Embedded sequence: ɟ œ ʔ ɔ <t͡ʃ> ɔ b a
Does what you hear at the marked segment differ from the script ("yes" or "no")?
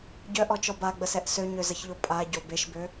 no